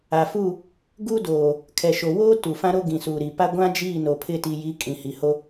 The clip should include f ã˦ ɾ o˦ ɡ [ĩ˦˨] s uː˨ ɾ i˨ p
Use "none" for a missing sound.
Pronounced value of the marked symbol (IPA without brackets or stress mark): ĩ˨